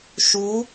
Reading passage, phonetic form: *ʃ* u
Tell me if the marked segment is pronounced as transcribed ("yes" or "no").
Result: yes